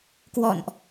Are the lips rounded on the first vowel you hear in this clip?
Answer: yes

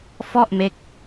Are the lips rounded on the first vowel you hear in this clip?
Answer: yes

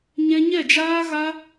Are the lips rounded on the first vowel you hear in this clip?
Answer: no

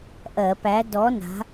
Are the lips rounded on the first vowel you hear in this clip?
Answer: no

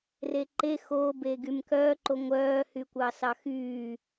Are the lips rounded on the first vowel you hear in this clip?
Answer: no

